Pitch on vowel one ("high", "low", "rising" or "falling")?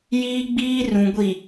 high